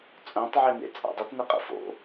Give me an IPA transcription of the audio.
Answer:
t͡sʼ œ̃ tˤ ʕ e n ḛ t͡sʼ a̰ dˤ ə t n ɪ qʼ ə̰ f o̰

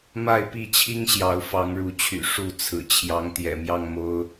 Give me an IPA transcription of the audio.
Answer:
m a˥˨ ɪ̯ p i˥˨ t͡ɕʰ i˦ ŋ ɕ j ɑ˨˦ ʊ̯ f ɑ˨˦ ŋ ɻ u˨˦ t͡ɕʰ y̰˨˩ ʂ u˥˨ t͡sʰ ɹ̩˨˩ t͡ɕʰ j ɑ˨˦ ŋ t̪ j ɛ̰˨˩ m j ɑ˥˨ ŋ m o˦ ʊ̯

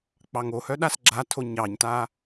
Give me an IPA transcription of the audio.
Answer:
k͡p ɑ ŋ o h œ ɗ a s ɡ͡ǁ a tʰ o ɲ ɑ ɲ t a

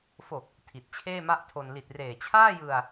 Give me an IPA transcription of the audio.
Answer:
f o˨˩ k̚ | tʰ i˨˩ t̚ t͡ɕʰ eː˥˩ m a˥˩ ʔ tʰ o˧ n l i˨˩ t̚ r eː˨˩ t͡ɕʰ aː˥˩ j ɯ˧ a̯

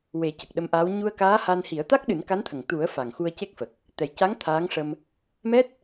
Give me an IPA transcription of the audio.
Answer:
w e˨˩˦ c ə˨˩ k̚ ɗ ə˧˥ m ʔ aː˧˥ w ɲ u˧ ə̯ k aː˧˥ h a˧ n h i˨˩˦ ə̯ t̪ a˦˥ k̚ ɗ ɨ˨˩˦ n k a˧˥ n t̪ʰ ə˨˩ ŋ t̪ u˨˩˦ ə̯ f a˨˩ ŋ x u˧ ə̯ c e˦˥ k̚ f ə˨˩ k̚ | t̪ ɛ˨˩ j c a˧˥ ŋ t̪ʰ aː˧˥ ŋ ʂ ə˧ m | m ɛ˦˥ t̚

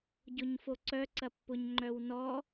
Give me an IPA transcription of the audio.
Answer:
ɟ ʊ ɲ f o ǀ œ ǀ ɐ pː ʊ ɲ ŋ͡ǃ œ w n ɔ

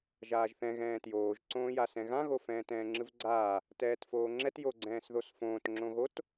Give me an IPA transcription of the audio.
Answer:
ʒ aː ʒ θ ɛ̃ ɣ ɛ̃ː t j oː ʒ ǀ õː j a s ɛ̃ ɣ ã ɣ o f ɛ̃ː t ɛ̃ː ŋ͡ǁ ɯ v ɡ͡ǀ aː | t ɛː t f oː ŋ͡ǁ ɛ t j o ɡ͡ǀ ɛ̃ː s ð o s f õː t ŋ͡ǁ õ ɣ o t

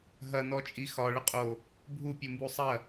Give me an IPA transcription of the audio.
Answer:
ɦ ɐ n ɔ t͡ʃʼ i x ɒ ɭ ə qʼ o | bʱ u pʲ u m b u sˤ ɐ

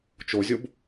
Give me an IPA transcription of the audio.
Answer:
t͡ʃ o zʲ o b

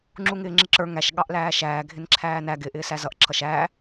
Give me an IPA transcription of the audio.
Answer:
ŋ͡ǁ u ŋ ɪː ŋ͡ǁ ɪ ǁ ə˞ ŋ æ ʃ ɠ ɑ ʔ l æː ʃ æː ɡʱ ɪ n ǁʰ æː n æ ɡ ɪ ʔ ɪː s æ z ʌ ʔ ǁʰ ʌ ʃ æː

